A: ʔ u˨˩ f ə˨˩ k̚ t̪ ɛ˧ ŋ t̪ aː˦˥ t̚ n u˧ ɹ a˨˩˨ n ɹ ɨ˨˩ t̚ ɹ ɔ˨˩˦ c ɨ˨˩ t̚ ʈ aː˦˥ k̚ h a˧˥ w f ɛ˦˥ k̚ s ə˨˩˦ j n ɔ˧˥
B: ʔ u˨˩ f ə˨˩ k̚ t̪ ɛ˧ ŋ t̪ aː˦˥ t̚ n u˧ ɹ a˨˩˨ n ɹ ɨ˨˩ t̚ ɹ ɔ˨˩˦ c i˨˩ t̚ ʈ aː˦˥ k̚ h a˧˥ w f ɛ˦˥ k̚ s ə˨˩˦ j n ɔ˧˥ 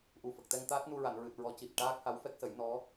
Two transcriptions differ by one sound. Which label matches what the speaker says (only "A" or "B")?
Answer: B